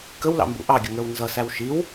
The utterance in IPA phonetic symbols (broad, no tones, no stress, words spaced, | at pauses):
kəwlɑ̰mbṵ ʔɑɡʲʊŋə˞w nzʌsæw ʃiw